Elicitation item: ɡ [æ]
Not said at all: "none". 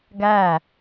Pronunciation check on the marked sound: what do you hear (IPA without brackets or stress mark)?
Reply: æ